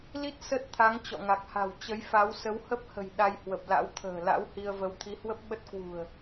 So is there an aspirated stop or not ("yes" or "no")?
yes